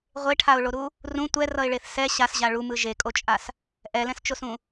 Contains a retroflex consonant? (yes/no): yes